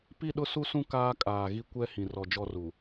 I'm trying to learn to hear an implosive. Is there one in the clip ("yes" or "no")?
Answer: yes